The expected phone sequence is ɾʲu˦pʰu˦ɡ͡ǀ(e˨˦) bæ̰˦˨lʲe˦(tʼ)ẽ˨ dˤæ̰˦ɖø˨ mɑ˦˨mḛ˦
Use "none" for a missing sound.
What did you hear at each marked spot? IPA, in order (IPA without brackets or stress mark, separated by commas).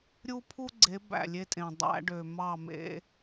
e˨˦, tʼ